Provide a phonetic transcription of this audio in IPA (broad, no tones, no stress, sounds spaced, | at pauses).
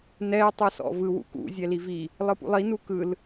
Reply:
n ɛ ɪ̯ tˤ u s ɔ̰ v ɯ w ṵ k ṵ zʲ ɛ l i v i | lˠ ɯ p ṵ lˠ i n u k ɯ l